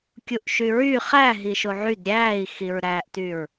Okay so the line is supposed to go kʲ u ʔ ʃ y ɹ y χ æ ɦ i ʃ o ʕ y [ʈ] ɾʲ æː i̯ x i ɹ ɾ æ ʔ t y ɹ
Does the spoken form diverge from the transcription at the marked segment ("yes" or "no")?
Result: yes